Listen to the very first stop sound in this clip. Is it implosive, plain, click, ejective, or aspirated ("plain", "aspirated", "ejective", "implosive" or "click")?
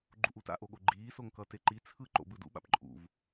click